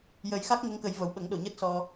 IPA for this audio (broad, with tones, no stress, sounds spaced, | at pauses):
j ə˨˩˦ j x a˦˥ k̚ ŋ ə˧˥ ŋ k ə˨˩˦ j v ə˨˩ w ɓ ə˨˩˦ ŋ ɗ o˨˩˨ ɲ əː˦˥ t̚ s ɔ˧